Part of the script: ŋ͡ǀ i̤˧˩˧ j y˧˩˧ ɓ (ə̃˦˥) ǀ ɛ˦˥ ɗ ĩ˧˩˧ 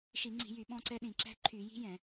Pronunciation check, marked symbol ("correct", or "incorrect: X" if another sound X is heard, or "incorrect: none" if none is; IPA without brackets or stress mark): incorrect: ɔ̃˦˥